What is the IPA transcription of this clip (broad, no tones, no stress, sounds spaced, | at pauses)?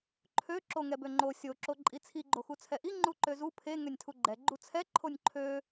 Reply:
ǃʰ ø ǁ o ŋ ɛ b ø ŋ͡ǃ o sʲ o ǁ o ǃʼ i t͡sʰ i ɡ͡ǃ o x u t͡sʰ ɛ ʔ i ŋ͡ǃ u ǃ ø z u pʰ e ŋ ø nʲ tʰ u ɡ͡ǃ ɛ ɡ͡ǃ u t͡sʰ ɛ ǃʰ o nʲ ǃʰ ø